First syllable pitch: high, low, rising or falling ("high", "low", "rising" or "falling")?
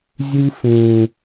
high